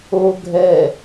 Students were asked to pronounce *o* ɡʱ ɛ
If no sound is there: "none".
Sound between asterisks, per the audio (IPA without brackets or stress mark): o